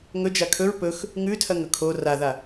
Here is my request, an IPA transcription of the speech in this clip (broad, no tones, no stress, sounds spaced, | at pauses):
ŋ ɵ d͡ʒ a kʰ ɵ ɹ p ɵ x | ŋ ʉ tʰ ɐ ŋ ɵ kʰ o r a ð a